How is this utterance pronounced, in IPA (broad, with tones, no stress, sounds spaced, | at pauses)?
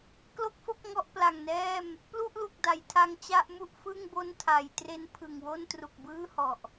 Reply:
k l o˥˩ k̚ f o˥˩ k̚ ŋ ɔ˦˥ ʔ p l a˨˩ ŋ n ɛː˥˩ m | p l u˥˩ ʔ l u˨˩ k̚ d a˩˦ j tʰ a˧ ŋ t͡ɕ a˥˩ ʔ m u˥˩ ʔ f ɯ˥˩ ŋ b o˥˩ n tʰ a˩˦ j t r e˧ n pʰ ɯ˨˩ ŋ w o˥˩ n t r u˨˩ k̚ b ɯː˥˩ h ɔ˨˩ ʔ